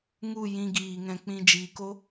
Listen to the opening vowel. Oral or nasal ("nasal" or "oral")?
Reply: oral